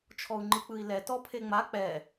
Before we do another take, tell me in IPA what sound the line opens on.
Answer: t͡ʃʰ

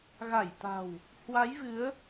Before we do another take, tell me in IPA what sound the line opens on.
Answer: ɣ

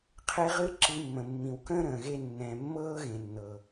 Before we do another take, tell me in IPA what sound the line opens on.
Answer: qʰ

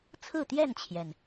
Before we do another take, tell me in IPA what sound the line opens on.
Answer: t͡sʰ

